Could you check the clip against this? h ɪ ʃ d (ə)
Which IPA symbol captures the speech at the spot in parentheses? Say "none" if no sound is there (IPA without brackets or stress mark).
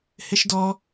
ɔ